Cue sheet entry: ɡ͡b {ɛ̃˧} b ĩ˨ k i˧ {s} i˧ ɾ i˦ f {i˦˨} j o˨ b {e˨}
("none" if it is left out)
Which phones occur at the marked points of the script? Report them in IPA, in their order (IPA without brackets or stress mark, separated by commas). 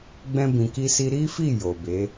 ɛ̃˧, s, i˦˨, e˨˦